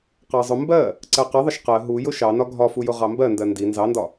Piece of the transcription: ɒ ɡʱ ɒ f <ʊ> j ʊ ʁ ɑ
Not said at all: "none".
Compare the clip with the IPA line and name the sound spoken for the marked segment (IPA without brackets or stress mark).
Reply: u